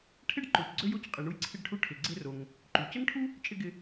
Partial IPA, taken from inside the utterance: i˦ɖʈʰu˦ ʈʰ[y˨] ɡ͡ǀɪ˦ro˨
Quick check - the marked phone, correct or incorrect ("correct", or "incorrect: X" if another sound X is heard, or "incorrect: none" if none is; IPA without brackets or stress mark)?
incorrect: ɪ˨